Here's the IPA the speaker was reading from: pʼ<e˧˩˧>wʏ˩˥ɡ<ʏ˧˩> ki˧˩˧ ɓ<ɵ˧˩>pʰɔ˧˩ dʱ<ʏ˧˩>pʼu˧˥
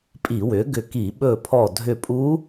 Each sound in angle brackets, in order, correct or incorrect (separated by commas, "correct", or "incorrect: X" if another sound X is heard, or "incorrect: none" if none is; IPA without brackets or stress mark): incorrect: i˧˩˧, correct, correct, correct